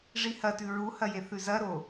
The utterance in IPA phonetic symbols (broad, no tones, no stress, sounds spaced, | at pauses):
ʐ i h ɐ t ʉ ɹ u h ɐ j e θ ʉ z ɐ ɾ o